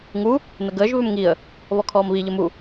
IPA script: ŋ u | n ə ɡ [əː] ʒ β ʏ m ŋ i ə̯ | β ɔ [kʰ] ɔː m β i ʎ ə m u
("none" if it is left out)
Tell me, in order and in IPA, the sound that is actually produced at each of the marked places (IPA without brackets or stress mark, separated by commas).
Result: əː, kʰ